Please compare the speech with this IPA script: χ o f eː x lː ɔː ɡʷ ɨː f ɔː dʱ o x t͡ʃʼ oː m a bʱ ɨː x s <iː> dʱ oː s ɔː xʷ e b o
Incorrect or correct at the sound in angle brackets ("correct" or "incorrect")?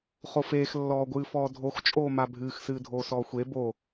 incorrect